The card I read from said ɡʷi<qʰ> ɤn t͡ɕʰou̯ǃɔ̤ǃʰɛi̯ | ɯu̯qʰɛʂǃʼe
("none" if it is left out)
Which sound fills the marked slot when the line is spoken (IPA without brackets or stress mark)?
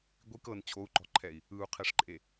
k